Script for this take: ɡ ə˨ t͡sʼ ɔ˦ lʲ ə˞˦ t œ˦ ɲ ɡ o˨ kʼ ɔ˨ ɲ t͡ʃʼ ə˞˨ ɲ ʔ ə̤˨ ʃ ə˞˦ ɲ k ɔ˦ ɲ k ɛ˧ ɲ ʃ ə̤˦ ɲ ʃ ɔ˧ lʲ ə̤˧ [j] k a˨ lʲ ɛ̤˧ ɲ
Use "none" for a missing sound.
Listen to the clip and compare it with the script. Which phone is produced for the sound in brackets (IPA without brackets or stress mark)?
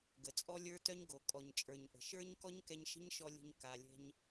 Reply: ɲ